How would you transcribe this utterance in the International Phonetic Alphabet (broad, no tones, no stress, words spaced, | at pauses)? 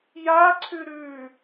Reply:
jaǀʰʉ ɾʉ